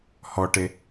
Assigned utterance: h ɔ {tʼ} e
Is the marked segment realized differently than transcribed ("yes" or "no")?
yes